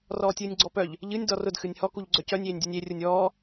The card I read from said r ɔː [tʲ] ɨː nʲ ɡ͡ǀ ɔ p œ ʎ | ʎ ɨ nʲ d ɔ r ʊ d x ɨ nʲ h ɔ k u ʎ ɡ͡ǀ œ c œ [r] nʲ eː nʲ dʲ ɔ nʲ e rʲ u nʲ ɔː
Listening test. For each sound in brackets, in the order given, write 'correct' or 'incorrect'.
correct, incorrect: none

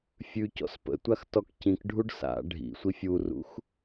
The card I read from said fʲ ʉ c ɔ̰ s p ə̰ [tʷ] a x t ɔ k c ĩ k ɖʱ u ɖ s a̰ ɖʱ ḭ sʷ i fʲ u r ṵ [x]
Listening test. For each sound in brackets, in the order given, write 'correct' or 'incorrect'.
correct, correct

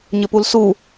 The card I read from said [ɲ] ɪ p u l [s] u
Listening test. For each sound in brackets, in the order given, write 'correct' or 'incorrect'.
correct, correct

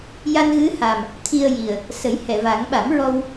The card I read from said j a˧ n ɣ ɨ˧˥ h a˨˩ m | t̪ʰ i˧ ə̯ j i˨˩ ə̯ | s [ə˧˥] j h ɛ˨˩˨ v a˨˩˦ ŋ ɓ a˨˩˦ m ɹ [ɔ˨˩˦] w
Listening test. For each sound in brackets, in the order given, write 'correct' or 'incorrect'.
incorrect: ə˨˩˦, incorrect: ɔ˧

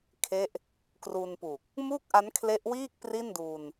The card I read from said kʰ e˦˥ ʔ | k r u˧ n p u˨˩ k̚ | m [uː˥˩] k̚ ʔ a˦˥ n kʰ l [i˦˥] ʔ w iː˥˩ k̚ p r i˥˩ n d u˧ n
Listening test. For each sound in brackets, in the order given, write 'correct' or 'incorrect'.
correct, incorrect: e˦˥

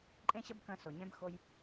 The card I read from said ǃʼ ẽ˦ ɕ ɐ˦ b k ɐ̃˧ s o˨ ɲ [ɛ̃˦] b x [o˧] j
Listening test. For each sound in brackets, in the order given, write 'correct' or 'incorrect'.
correct, correct

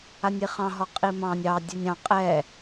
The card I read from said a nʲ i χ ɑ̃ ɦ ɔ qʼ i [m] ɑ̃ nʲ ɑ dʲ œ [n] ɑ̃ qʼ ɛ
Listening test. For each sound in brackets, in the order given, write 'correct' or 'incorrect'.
correct, incorrect: nʲ

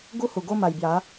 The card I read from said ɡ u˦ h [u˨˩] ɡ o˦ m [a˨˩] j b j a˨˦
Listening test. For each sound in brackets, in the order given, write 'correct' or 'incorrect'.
correct, correct

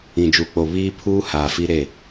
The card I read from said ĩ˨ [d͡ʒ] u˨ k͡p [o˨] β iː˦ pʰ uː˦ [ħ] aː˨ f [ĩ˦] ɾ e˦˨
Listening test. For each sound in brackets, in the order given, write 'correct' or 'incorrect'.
correct, correct, incorrect: h, incorrect: i˦

